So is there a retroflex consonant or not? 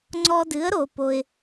no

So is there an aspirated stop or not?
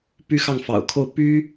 yes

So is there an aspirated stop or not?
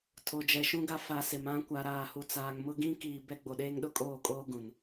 yes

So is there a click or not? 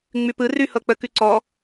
yes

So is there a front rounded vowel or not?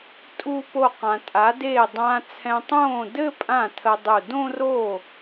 no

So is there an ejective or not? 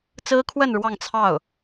no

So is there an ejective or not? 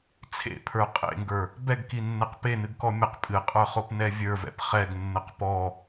yes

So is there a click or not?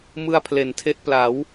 no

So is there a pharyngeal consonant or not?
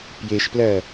no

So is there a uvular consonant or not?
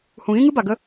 no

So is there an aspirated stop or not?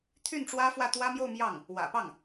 yes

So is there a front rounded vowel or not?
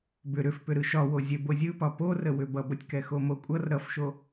yes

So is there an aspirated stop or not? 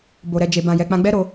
no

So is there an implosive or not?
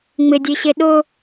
yes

